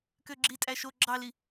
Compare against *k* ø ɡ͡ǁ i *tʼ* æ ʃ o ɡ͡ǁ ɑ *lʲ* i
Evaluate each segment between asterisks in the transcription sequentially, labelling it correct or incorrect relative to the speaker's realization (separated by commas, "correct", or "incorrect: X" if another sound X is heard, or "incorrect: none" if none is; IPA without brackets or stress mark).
correct, correct, incorrect: l